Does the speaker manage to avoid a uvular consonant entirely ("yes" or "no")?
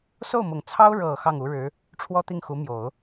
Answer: yes